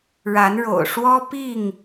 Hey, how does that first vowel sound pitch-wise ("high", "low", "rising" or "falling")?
rising